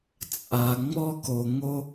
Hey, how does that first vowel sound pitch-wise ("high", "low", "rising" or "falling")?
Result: low